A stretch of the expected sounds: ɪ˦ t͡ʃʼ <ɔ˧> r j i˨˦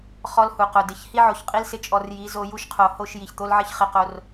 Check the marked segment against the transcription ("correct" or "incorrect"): correct